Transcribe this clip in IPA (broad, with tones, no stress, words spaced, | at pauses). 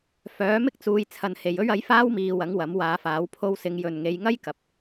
fœː˨˥mɪ˥k̚t͡suː˨˧j t͡sʰɐ˨nhe˨jɵ˥ɥ ɐ˨˥jfaː˥wmiː˨ wɐ˨˥ŋwɐ˨˥mwaː˨˧faː˨˥w pʰo˧wsɪ˨˧ŋ jɵ˨nŋe˨˧jŋɐ˥j kɐ˨p̚